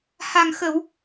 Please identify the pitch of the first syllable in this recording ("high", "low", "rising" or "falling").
low